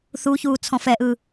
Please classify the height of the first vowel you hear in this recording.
high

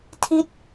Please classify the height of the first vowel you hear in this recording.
high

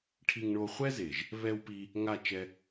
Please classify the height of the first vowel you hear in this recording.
high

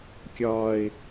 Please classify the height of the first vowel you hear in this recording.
low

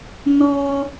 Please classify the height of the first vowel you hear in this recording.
mid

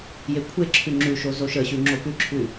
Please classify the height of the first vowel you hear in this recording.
mid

